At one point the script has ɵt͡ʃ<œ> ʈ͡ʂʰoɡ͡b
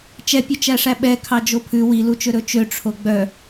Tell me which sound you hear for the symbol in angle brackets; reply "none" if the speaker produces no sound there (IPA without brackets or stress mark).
ø